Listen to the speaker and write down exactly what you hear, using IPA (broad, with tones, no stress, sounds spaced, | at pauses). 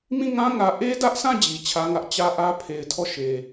m ĩ˦˨ ŋ ã˦ ŋ ä˨ ʔ e˦ d ä˦ ʔ s ã˦˨ d͡ʑ i˨ t͡ɕʰ ä˦ ŋ ä˦ ʔ t͡ɕ ä˦ ʔ ä˦ pʰ e˨ ɪ̯ tʰ ɔ˦˨ ʃ e˨